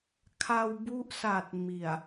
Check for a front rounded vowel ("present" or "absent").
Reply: absent